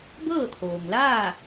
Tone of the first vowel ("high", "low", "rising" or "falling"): falling